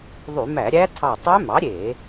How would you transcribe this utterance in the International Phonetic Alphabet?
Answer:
ðˤ y˧˩˧ m æ˧˩˧ ɾʲ æ˦˥ tʰ ɑ˧˩ tˤ ø˦˥ m ɑ˩˥ ɾʲ e˧˩˧

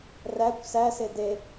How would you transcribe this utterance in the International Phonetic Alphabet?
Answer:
r æ kʷ s æ s e d e

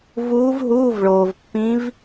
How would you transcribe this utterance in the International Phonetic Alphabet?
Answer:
v uː˧˥ v ɦ uː˧˥˧ v ɭ oː˩ v pː ĩ˧˥ v

